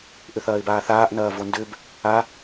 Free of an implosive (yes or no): yes